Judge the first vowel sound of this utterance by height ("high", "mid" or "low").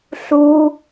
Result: high